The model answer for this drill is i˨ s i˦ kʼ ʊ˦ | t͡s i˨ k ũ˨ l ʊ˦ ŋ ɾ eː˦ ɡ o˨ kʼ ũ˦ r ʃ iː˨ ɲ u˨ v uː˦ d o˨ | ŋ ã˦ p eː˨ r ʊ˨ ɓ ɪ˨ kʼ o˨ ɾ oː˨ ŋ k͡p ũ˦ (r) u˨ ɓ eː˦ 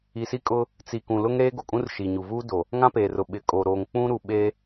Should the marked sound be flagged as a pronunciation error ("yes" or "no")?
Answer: yes